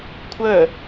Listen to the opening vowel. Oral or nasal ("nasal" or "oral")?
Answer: oral